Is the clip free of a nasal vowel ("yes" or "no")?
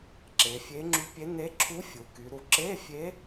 yes